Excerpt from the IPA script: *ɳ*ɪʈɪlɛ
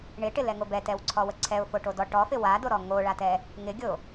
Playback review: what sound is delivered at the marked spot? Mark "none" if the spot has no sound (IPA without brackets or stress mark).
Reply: ɳ